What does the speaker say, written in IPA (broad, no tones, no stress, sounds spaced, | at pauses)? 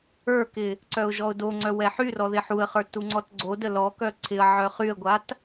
ə˞ k ɪ | ǀ œ ʊ̯ ʒ ɔ ʊ̯ d o ŋ͡ǀ œ w ɛ ħ y r ɔ ð ɪ ħ u ə̯ χ ə˞ t u ŋ͡ǀ ɔ t ɡ͡ǀ o d ə l ɔ k œ ǀʰ ɪ ə̯ ʕ œ χ y ə̯ ɡʷ a t